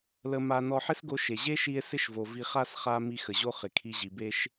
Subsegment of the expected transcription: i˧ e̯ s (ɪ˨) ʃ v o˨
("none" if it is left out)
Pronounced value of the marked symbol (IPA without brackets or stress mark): ɪ˦